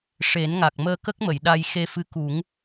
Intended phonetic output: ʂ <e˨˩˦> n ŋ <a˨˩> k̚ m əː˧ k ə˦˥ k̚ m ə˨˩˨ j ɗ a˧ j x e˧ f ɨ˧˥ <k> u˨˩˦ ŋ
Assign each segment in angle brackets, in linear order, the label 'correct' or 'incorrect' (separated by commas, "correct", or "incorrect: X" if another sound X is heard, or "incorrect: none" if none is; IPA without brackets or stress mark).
correct, correct, correct